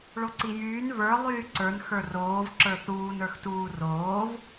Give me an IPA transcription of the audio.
ɭ o ǀ i j yː n v ə˞ lˠ yː ǀ ə˞ n x ə˞ r oː v ǁ ə˞ θ uː n ə˞ x t uː r oː v

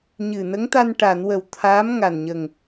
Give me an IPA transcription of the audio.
ɲ ɨ˨˩ n ə˧˥ ŋ t̪ a˧ n ʈ a˨˩˨ n w ə˨˩ w t̪ʰ aː˧˥ m ŋ a˨˩ n ɲ ə˨˩ ŋ

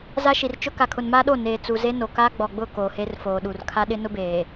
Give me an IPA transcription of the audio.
z a˦ ʃ i˨ r t͡ʃ ʊ˦ k a˨ kʰ ʊ˨ n m aː˦ ɗ o˦˨ n eː˨ t͡s u˨ z e˦ n o˨ k aː˦ ɡ͡b ɔ˨ ɡ͡b ʊ˦˨ k oː˨ h e˦ r f oː˨ ɗ u˨ r kʰ a˦ ɗ ɪ˦ n ʊ˦ b eː˨

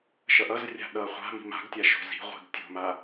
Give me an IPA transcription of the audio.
ʃ ʌ ʔ ʌ z rʲ a̤ ɗ ʌ χʷ a̤ m i̤ m a̤ ɡ tʲ a ʃ o̤ z i̤ ʁʷ i̤ ɡ tʲ o̤ m a

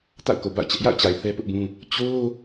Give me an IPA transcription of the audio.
t a̰˦˨ ʊ̯ k o˨ b a̰˦˨ ʊ̯ t͡ɕ ɛ˦ ʔ j a̰˦˨ ʊ̯ t͡ɕ a˨ ɪ̯ θ ɛ˦ p ʊ˦ ʔ b ũ˦ | t͡ɕ o˦

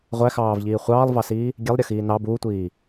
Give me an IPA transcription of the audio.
ʁʷ æ x ɑː v ʎ iː χʷ ɑː lˠ v ɑ s iː | ɡʲ ɛ lˠ ɾʲ ʌ x iː n ɑ b uː tʷ iː

